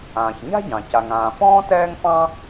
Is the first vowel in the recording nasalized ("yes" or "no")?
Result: yes